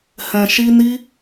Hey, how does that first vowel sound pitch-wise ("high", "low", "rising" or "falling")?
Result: low